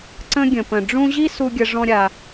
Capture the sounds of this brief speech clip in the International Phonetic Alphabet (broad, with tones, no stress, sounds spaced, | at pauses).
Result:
ǀ ə̃˦ ɡʲ ə̃˩ p ə̃˩ ɖ͡ʐ ũ˦ ʑ i˥ s u˥ ɡʲ ə˦ ʐ ɔ̃˥ ɾʲ a˨